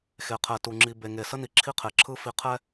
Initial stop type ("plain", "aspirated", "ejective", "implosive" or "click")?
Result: aspirated